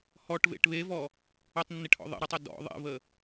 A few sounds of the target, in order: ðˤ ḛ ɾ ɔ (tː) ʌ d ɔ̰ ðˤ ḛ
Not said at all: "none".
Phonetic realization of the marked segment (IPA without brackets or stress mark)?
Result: tˤ